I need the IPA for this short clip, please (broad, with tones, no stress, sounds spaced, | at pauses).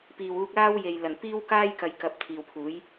p iː˨ w uː˧ k̚ l aː˥ w j e˨ j l ɐ˨˩ n p iː˥ w k aː˥ j k ɐ˨˧ j k ɐ˨˥ p̚ t̪ʰ iː˨ w pʰ uː˨˥ j